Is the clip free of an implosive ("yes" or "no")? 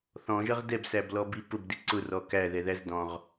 yes